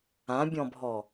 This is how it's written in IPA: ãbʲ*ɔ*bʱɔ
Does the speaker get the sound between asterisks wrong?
yes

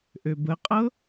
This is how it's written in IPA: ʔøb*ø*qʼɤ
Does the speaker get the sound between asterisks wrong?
yes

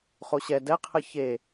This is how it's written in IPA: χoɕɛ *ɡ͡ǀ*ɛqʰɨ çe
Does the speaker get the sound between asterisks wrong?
yes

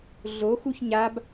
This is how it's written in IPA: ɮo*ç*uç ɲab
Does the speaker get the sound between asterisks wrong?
yes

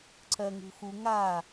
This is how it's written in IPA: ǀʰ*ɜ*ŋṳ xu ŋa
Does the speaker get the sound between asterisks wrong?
no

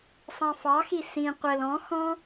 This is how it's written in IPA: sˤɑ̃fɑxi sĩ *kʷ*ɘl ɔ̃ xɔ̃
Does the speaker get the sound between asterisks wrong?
yes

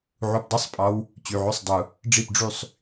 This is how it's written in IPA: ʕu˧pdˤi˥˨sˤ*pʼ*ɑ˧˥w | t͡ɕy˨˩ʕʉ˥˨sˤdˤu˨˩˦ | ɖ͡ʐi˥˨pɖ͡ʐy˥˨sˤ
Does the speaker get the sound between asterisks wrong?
no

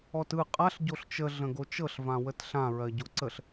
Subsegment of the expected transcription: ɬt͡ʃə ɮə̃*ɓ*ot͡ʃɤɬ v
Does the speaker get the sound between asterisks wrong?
yes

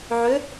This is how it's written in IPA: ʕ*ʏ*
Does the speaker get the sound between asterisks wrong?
no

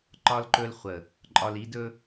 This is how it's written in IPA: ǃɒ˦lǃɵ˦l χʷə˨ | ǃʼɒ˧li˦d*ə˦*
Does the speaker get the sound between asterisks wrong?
yes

